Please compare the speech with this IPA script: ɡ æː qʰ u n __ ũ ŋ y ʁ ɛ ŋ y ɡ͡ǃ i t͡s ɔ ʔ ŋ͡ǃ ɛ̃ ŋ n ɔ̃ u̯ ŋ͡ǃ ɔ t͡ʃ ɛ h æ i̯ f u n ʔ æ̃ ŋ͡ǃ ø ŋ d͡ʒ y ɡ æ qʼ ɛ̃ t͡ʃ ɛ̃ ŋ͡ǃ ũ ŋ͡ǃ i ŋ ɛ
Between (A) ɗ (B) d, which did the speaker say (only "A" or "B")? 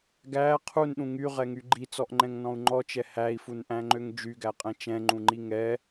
A